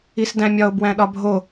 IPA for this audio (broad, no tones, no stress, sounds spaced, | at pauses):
i s d æ̃ mʲ ɒ o̯ b w æ̃ ɗ ɒ bʱ o